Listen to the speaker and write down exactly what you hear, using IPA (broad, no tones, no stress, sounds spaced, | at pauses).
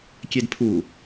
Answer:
kʲ e d pʰ u